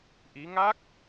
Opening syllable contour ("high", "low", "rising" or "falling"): rising